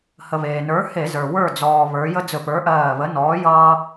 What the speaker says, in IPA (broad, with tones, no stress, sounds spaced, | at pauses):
h ə˩ β eː˩ n ə˞˨˥ h e˧˩˧ z ə˞˩ w ə˞˧˩ d͡z ɔː˩ β ə˞˩˧ j ə˦ d͡z ɵ˧˩˧ p ə˞˨˥ ʔ ɜː˧˩ β ə˨˥ n ɔː˨˥ j ʌː˦